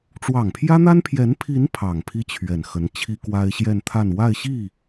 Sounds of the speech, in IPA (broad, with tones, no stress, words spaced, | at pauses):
ʈ͡ʂwɑ˨˩ŋpʰjä˥n̪a˥n pʰjɛ˧˥npʰi˧˥n pʰɑ˨˩ŋpʰi˥ t͡ɕʰɥɛ˨˩nxə˧˥n t͡ɕʰi˥kwa˥ɪ̯ɕjɛ˥˧nt̪ʰa˥˧n wa˥˧ɪ̯ɕi˥˩